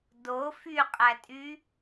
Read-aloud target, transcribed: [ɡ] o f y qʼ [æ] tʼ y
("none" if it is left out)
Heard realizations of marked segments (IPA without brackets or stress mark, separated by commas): d, æ